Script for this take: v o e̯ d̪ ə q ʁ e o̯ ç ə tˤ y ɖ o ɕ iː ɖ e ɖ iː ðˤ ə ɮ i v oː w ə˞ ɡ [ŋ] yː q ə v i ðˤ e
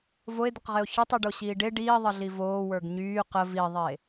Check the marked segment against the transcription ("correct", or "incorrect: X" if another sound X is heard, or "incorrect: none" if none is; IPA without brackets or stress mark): incorrect: ɲ